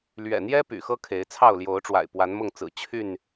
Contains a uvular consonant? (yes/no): no